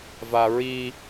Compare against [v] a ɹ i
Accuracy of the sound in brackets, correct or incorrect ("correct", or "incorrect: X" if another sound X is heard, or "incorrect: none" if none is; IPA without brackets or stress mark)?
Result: correct